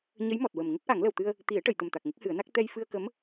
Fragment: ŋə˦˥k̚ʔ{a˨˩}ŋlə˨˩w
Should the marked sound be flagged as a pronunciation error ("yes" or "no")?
yes